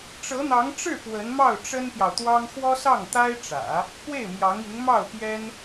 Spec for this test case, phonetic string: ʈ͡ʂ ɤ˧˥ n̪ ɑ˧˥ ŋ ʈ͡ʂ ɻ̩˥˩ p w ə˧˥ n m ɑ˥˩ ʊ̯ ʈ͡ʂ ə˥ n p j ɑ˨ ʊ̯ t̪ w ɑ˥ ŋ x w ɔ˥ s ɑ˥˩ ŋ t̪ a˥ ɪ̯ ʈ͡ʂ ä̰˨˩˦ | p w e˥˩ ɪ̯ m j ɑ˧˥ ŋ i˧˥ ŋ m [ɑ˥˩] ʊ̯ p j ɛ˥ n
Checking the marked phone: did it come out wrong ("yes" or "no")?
no